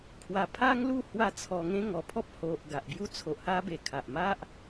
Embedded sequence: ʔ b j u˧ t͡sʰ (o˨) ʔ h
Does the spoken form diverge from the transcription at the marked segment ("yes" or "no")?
no